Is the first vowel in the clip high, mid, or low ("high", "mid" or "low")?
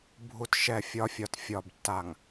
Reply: high